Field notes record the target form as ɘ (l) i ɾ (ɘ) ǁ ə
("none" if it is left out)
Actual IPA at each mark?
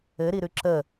ɾ, ʉ

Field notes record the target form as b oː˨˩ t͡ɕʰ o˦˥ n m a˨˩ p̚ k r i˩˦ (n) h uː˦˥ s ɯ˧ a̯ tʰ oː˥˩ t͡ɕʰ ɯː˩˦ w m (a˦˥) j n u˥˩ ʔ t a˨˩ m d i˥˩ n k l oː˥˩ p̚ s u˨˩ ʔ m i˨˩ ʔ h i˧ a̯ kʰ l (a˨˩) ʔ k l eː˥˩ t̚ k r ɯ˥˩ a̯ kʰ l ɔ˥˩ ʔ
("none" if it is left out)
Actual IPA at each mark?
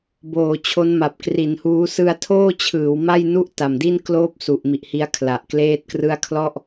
n, a˥˩, a˨˩

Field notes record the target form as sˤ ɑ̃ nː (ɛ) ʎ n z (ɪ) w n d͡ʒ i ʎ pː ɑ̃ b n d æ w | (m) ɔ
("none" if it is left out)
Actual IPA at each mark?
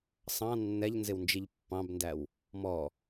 ɛ, ɪ, m

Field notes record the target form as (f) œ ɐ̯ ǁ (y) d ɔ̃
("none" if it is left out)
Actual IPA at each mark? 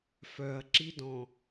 f, i

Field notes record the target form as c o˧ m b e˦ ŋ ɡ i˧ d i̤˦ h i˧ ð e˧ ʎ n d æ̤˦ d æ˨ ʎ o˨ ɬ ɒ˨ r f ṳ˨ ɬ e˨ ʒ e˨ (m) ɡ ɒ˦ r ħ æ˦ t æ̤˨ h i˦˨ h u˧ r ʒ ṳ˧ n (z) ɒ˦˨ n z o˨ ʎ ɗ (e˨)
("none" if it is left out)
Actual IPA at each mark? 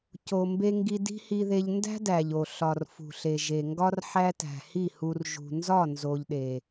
ŋ, z, e˨

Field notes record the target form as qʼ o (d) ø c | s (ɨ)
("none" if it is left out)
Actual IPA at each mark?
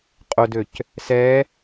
d, ɛ

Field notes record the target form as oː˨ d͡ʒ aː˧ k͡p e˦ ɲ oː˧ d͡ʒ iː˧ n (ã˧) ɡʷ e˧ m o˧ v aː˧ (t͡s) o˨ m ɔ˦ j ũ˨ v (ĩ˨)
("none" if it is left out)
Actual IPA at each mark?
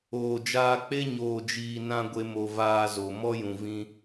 ã˧, z, ĩ˧

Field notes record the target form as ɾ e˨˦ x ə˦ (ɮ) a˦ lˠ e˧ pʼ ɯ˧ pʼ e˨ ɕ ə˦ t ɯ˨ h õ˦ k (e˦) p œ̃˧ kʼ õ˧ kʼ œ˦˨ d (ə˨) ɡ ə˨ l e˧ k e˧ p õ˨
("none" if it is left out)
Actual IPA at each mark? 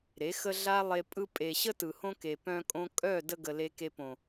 ɮ, e˨, ə˧

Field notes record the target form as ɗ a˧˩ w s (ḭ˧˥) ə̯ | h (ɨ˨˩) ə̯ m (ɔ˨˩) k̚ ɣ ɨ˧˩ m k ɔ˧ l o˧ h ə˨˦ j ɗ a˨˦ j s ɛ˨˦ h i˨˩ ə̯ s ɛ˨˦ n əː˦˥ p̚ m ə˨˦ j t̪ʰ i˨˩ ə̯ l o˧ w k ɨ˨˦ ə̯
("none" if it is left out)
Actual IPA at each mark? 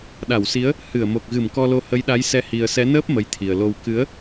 i˨˦, ɨ˧˩, o˨˩

